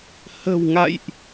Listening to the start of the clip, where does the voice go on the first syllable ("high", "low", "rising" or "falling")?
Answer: low